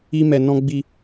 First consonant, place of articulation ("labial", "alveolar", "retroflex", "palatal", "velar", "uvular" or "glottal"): labial